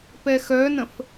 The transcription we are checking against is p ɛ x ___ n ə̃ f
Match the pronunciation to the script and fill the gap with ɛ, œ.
œ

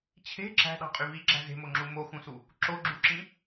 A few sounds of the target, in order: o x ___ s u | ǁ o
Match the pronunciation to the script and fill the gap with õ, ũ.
ũ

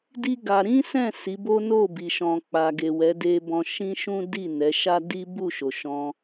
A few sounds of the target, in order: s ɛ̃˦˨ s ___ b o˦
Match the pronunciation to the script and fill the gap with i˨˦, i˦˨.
i˨˦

